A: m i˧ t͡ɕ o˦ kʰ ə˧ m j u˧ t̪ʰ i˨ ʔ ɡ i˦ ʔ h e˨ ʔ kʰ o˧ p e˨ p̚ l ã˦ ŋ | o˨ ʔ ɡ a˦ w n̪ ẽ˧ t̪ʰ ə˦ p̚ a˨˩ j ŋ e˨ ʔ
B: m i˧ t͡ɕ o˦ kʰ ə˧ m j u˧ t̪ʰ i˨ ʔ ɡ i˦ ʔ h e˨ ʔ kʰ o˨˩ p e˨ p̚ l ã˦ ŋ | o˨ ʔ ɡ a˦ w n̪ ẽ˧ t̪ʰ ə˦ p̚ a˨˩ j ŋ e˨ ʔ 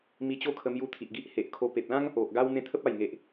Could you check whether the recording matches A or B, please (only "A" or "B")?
A